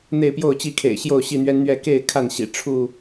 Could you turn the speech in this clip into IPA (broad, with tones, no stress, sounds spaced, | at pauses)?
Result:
n̪ e˥˨ ɪ̯ p j o˥˨ ʊ̯ t͡ɕ i˥˨ kʰ ḛ˨˩ ɪ̯ ɕ j o˥˨ ʊ̯ ɕ i˥˨ n̪ ɥ ɛ˦ n n̪ ɥ ɛ˥˨ k e˥˨ ɪ̯ kʰ a˥˨ n ɕ ḭ˨˩ ʈ͡ʂʰ u˥˨